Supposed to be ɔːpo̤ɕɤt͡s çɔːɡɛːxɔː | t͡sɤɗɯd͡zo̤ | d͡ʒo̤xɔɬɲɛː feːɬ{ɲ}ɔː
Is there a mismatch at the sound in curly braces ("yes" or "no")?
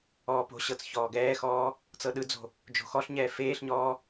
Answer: no